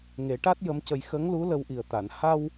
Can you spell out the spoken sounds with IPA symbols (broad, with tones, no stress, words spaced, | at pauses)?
ŋe˨˩˦ʈa˦˥t̚ jə˧˥mcə˧j xə˧˥ŋlu˧˥ lə˧wʔi˨˩ə̯t̪a˨˩˨n ha˧w